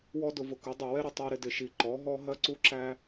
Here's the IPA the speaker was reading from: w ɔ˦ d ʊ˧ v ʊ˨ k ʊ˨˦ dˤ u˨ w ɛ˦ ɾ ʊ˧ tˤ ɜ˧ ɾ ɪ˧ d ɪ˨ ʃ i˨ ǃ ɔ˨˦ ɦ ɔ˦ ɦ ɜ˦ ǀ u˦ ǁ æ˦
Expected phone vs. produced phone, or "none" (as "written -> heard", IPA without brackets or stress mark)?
none